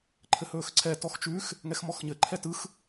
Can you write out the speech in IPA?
ǃʰ ɘ h ɵː x ǀʰ ɛ t ɔ x t͡ʃ ʉ x | ŋ ɛ x m ɔ x ɲ ɘ ǃʰ ɛ t ɯ x

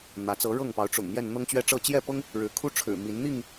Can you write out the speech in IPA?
n̪ ä˨˦ t͡s ɤ˨˦ ɻ ɤ˥˨ ŋ p ɑ˨˦ ʊ̯ ʈ͡ʂ ʊ̰˨˩ ŋ m j ɛ˥˨ n n̪ ɤ˦ ŋ t͡ɕ ɥ ɛ˦ ʈ͡ʂ ɤ˥˨ t͡ɕ j ɛ˥˨ p ɤ˦ ŋ | ɻ ɻ̩˨˦ kʰ u˦ ʈ͡ʂʰ ɻ̩˨˩ m i˨˦ n n̪ i˥˨ ŋ

